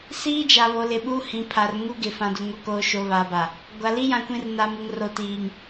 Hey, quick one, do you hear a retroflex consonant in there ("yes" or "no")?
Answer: no